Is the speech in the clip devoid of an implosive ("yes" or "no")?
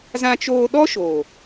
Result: no